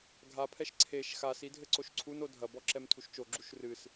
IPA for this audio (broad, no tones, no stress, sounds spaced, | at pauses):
ɡʱ a pʰ ɛ ʃ ǀʰ e ʃ x a s i dʱ ɘ ǀ o ʃ ǀʰ u n o dʱ ɐ b ɔ ǁ ɛ m tʰ u ʃ t͡ʃ o ɡ͡ǁ u ʃ r ɨ s